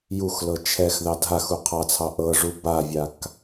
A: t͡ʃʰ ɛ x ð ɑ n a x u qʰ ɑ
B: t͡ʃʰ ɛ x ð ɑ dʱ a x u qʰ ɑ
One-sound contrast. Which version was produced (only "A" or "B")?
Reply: B